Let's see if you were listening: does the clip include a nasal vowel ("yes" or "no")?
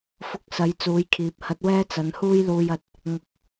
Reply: no